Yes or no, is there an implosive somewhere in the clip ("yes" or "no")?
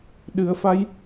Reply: yes